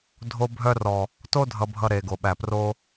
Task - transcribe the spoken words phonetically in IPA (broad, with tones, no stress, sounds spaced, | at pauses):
dʱ o˧ bʱ œ˧ r ɔ˨ | t o˦ dʱ ʌ˧ bʱ ʌ˧ ɾ e˨ ɡ o˨ ɓ æ˨ p r o˧